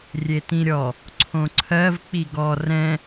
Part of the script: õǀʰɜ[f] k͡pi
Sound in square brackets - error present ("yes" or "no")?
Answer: yes